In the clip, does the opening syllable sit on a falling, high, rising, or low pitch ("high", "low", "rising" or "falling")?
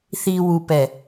low